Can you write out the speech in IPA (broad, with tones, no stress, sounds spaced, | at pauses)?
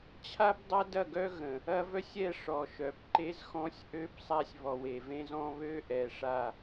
t͡ɕʰ a˦ b dˤ a˦ d ɐ˦˨ ɡ œ˦ ɣ ə̃˨ | ɐ˦ v œ˦ sʲ ɛ˦˨ ʂ ɔ˨ ʃ œ˨ p ǃ e˦ z x ɔ̃˦ sʲ ʔ ø˦ p sˤ a˦ sʲ β ɔ˨ w e˨ v ẽ˦ z ɔ̃˦ β ø˦ ʔ ɛ˨ ʂ a˨